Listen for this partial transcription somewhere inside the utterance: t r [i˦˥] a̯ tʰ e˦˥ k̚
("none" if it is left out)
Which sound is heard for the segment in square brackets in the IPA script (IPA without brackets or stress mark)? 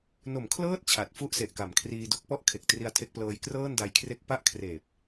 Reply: i˧